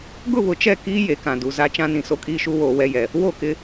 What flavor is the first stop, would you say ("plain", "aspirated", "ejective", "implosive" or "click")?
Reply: plain